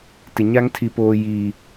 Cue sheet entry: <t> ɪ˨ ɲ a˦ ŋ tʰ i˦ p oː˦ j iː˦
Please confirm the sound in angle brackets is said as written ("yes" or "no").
yes